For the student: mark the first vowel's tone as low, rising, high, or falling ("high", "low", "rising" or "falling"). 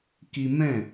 high